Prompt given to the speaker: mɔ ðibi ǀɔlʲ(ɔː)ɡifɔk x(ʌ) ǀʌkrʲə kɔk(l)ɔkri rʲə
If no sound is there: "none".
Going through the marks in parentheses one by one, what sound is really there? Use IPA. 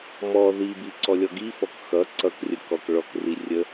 ɔ, ʌ, ɭ

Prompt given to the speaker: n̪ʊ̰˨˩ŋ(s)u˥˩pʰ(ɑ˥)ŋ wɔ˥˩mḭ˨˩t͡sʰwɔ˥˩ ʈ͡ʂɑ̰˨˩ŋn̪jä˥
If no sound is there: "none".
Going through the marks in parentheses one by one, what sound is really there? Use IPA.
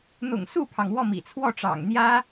s, ɑ˩

